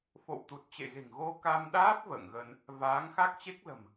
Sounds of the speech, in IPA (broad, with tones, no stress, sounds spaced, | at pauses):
f o̰˧˨ w t̪ u˨˩ t̚ t͡ɕ ḛ˧˨ ɣ e̤˨˩ ŋ ɣ o˧ k a˧ m ɗ aː˦˥ p̚ v ə̰ː˧˨ ŋ ɣ ə˧ n | v aː˨˦ ŋ x a˦˥ k̚ t͡ɕ e˦˥ k̚ l ə̤˨˩ m